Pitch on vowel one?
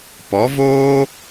rising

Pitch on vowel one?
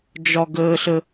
high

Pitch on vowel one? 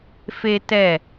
high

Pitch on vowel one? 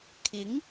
rising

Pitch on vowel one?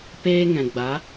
high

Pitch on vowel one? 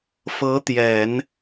rising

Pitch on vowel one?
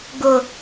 high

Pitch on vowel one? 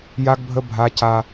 high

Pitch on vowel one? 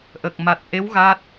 low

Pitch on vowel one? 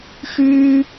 high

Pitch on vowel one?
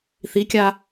rising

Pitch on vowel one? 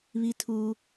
high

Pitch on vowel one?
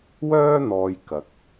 high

